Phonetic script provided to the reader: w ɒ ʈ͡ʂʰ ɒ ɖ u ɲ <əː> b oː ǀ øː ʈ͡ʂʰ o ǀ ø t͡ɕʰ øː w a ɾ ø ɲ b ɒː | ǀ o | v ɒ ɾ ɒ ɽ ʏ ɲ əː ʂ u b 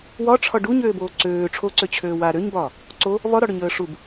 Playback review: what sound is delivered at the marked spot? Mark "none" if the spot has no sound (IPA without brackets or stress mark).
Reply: øː